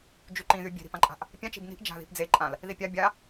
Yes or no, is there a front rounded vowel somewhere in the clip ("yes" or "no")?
yes